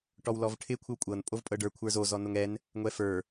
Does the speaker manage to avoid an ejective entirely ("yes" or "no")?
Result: no